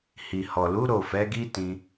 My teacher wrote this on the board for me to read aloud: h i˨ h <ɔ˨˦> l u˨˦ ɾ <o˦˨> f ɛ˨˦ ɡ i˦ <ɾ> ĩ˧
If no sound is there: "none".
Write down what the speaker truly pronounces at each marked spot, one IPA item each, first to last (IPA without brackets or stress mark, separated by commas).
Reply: ɔ˨, o˦˨, t